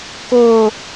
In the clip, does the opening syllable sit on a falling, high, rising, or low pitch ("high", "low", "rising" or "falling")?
high